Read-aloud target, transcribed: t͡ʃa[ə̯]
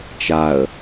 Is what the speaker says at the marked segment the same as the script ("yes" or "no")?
yes